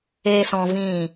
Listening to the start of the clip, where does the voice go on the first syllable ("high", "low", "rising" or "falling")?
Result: high